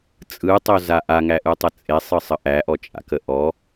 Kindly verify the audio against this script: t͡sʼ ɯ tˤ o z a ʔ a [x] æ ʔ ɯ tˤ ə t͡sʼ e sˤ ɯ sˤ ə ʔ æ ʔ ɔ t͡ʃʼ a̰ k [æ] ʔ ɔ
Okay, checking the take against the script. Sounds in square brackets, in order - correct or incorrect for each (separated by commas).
incorrect, incorrect